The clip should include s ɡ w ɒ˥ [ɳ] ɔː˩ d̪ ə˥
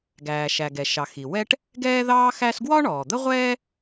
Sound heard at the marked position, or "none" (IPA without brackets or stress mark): ɳ